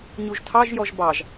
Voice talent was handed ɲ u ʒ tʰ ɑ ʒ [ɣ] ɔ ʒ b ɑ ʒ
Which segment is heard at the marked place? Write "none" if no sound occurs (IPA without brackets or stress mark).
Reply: j